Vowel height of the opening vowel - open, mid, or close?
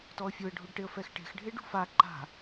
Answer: mid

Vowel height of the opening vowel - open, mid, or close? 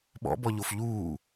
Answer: mid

